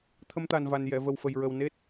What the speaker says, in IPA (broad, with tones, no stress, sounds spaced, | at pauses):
t̪ʰ ə˧ m t̪ a˨˩ n v a˨˩ n j ɛ˨˩˨ v ə˨˩ w f ə˨˩ j ɹ ə˨˩ w n e˦˥ t̚